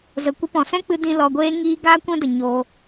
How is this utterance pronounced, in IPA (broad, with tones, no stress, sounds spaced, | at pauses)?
z ə˧ kʷ ə˧ p ɔ̃˨ s ɛ̃˦ k͡p ɨ˧ d ĩ˧ l ɔ˧ ɡʷ eː˦ ŋ iː˦ ɡ aː˦ kʷ ɛ̃˦ d ə˧ ɲ o˦